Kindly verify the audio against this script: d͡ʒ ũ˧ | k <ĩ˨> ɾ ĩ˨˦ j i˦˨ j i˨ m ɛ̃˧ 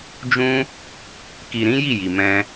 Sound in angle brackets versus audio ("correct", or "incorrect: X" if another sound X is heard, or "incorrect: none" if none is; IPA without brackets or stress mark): incorrect: i˨